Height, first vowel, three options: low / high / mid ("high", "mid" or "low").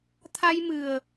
low